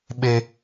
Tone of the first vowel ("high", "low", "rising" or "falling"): high